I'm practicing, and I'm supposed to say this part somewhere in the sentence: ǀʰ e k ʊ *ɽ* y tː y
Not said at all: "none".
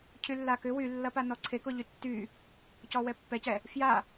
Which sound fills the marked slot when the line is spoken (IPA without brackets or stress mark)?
ʎ